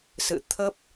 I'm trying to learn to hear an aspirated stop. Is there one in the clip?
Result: yes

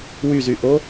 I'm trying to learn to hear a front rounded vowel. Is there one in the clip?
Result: yes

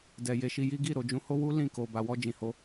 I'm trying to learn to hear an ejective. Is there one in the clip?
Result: no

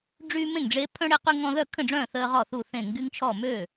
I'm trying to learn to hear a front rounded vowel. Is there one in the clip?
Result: yes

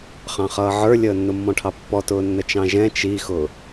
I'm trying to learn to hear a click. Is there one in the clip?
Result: no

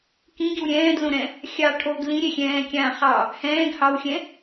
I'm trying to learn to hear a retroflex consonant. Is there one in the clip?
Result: yes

